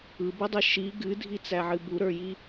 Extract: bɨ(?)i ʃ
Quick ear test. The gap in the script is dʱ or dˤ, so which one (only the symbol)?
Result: dˤ